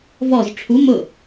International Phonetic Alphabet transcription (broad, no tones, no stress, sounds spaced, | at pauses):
v ɔ z ʈ͡ʂʰ u m ʊ